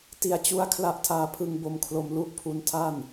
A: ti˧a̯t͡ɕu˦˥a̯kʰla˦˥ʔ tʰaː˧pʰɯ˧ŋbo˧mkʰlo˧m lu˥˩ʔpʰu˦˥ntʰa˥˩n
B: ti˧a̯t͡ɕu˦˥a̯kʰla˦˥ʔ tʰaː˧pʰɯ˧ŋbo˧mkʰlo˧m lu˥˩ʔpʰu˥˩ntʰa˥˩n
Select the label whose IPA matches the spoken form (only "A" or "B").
A